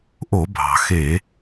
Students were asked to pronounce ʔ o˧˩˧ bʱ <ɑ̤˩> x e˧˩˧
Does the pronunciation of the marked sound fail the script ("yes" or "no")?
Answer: no